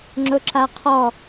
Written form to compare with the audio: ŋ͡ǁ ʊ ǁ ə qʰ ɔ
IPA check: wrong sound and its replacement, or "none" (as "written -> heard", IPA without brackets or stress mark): ə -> a